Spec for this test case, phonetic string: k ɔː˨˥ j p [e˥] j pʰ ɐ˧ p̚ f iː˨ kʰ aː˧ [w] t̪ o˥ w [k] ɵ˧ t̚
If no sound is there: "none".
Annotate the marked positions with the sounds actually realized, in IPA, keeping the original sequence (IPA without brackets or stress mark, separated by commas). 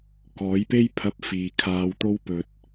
e˥, w, p